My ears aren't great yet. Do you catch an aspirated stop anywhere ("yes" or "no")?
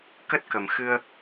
no